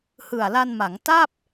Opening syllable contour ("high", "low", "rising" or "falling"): low